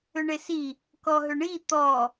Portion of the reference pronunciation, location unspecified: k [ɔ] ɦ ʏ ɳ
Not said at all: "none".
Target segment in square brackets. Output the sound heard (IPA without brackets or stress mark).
ɔ